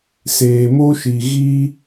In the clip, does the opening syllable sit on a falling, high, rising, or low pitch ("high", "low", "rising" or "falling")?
low